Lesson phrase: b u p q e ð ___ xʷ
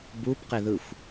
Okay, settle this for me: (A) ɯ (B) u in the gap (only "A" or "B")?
A